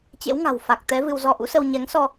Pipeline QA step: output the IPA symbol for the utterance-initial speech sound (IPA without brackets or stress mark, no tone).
t͡ɕ